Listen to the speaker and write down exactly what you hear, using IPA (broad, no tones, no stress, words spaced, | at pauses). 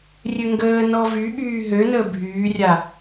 rʲøŋɡəː nɔvy ɓyːɦønəː bʱyːrʲa